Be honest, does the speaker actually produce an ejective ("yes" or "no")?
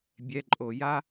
yes